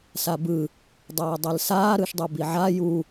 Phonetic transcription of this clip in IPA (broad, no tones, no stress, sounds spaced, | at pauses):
s a b ɯ | dˤ aː dˤ ɛ l s aː ɾ ɯ ʃ dˤ u b i ʕ a j u